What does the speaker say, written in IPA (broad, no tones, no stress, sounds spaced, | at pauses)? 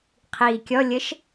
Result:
qʰ iː kʲ ɔ lʲ ə ʃ